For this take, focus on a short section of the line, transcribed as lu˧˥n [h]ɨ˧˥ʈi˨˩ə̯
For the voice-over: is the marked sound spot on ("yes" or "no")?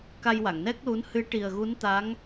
yes